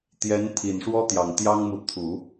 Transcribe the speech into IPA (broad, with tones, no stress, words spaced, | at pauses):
t̪jɛ˧˥nt̪ʰi˨˩nʂwɔ˥ t̪jɑ˨˩ŋt̪jɑ˥ŋmu˨ t̪ʰu˨˩˦